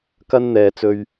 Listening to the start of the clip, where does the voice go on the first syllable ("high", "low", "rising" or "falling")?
high